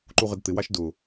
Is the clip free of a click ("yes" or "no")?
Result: no